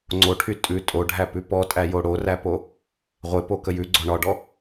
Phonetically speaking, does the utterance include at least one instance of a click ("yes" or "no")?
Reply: yes